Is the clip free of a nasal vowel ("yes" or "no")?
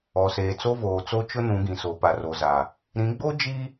no